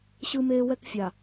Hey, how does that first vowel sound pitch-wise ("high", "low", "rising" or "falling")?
high